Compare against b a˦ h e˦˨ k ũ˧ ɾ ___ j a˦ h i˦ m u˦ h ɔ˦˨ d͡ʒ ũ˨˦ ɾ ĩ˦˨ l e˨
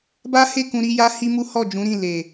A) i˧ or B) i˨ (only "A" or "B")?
A